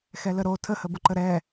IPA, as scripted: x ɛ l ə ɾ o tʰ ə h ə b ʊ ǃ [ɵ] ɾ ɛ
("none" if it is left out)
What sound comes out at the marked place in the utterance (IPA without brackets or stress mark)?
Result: ə